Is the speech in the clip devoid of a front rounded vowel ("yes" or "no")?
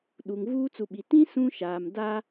yes